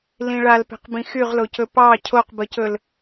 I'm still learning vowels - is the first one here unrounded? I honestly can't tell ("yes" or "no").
yes